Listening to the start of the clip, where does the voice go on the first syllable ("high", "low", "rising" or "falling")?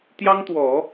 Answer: high